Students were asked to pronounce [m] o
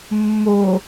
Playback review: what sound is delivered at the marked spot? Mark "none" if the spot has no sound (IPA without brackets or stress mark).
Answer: mː